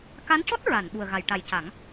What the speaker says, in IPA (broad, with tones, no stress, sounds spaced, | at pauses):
k a˧˥ n c ɔ˦˥ t̚ ɹ a˨˩˨ n ɓ u˨˩ ə̯ ɣ a˨˩˨ j ʈ a˨˩˦ j c a˨˩˦ ŋ